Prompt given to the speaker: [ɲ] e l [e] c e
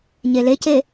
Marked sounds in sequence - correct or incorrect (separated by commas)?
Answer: correct, correct